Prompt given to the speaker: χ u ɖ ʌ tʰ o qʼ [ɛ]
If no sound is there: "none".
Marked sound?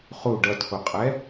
ɛ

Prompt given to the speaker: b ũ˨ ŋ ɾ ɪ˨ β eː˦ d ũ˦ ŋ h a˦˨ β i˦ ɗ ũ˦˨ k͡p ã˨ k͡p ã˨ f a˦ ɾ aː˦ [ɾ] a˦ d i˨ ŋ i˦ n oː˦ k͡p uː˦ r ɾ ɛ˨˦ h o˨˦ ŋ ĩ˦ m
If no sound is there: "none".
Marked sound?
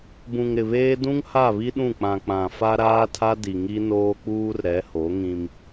tʰ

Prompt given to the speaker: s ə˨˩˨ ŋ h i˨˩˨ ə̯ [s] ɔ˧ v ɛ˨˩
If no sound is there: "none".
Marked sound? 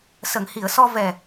s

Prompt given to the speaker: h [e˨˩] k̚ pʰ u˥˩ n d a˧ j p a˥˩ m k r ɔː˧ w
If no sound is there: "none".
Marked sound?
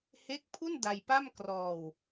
e˦˥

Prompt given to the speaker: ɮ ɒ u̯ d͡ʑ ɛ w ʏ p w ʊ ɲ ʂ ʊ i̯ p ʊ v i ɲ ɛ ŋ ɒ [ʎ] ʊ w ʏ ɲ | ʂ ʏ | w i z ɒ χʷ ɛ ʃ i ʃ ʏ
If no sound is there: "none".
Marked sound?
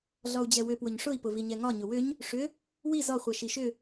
ɲ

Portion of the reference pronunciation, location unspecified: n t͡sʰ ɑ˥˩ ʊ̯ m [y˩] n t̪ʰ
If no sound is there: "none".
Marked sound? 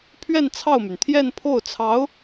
y˩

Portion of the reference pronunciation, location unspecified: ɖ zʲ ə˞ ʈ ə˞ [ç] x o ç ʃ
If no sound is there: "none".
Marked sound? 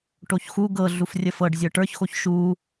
ç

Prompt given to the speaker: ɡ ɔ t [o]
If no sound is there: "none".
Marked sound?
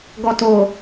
o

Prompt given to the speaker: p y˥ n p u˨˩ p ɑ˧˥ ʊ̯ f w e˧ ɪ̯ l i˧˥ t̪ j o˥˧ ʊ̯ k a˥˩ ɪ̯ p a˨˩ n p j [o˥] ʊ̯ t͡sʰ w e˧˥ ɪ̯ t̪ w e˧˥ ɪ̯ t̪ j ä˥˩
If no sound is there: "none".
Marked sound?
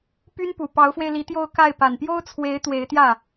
o˥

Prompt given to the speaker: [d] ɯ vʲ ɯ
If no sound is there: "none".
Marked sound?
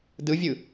d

